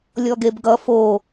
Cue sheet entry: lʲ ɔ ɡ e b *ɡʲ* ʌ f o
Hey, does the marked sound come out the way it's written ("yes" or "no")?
no